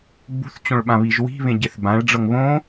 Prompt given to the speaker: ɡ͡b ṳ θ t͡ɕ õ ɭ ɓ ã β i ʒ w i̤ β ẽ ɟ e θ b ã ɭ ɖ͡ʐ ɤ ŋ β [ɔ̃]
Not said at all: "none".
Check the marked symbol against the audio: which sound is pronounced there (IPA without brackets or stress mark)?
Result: õ